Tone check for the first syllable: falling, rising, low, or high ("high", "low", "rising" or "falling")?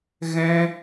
high